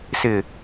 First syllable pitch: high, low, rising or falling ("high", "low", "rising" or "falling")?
low